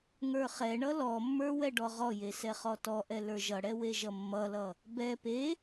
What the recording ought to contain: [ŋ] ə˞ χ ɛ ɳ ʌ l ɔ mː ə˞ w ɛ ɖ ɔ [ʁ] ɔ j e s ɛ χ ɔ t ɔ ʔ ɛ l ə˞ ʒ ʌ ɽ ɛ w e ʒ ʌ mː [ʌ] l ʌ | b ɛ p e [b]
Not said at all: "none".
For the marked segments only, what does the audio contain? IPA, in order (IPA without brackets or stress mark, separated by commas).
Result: ŋ, ʁ, ʌ, none